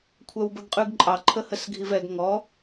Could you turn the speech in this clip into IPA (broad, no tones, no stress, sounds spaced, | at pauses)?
kʷʰ œ w b ə ɡ qʼ ʉ ɡ ǃʼ ɑ ǃʰ ə h ə s ɡʱ i v ɛ ɡ ŋ ɔ